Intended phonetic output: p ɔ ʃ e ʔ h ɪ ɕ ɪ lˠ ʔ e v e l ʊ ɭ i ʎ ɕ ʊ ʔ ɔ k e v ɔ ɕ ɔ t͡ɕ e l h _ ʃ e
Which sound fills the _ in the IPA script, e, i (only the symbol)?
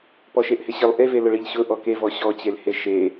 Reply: e